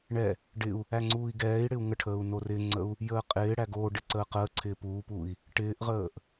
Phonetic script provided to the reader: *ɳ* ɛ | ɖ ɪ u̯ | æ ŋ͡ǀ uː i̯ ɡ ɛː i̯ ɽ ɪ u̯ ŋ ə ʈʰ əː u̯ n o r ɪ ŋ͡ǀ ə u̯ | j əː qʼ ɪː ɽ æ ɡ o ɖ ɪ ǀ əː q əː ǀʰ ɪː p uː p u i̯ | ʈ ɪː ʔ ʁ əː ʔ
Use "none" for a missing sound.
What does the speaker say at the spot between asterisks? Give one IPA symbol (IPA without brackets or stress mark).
ɳ